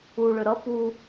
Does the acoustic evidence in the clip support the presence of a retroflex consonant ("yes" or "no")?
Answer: yes